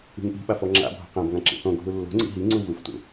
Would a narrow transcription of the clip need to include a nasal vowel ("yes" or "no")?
yes